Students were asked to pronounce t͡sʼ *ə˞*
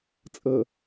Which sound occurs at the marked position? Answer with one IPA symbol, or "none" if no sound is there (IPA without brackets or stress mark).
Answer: ɤ